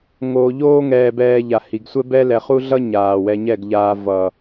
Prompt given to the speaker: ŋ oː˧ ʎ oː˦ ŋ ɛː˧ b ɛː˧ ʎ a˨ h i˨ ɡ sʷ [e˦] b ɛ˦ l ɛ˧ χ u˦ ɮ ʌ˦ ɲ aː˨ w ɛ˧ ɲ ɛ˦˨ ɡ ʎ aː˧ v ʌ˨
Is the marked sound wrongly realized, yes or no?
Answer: yes